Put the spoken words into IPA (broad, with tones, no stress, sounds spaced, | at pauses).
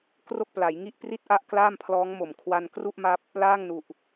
k r o˥˩ k̚ p l a˩˦ j ŋ i˥˩ ʔ p r i˥˩ t̚ ʔ a˦˥ ʔ k l aː˥˩ m pʰ l ɔː˦˥ ŋ m o˨˩ m kʰ w a˧ n k r u˥˩ ʔ m a˦˥ p̚ | l aː˥˩ ŋ n u˨˩ ʔ